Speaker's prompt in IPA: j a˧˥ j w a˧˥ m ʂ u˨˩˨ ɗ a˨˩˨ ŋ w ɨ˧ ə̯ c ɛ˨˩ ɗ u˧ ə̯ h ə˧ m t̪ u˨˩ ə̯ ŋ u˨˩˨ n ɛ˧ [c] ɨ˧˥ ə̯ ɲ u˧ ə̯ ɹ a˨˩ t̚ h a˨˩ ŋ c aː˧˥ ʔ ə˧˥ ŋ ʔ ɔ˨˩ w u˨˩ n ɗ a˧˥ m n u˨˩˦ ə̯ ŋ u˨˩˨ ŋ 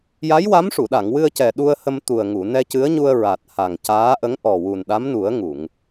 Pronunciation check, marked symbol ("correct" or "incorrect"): correct